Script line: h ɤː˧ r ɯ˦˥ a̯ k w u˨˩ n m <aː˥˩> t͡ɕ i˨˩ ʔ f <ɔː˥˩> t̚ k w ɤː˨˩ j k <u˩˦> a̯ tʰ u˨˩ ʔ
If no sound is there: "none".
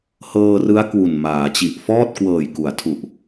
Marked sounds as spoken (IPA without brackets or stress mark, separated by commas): aː˩˦, ɔː˥˩, u˩˦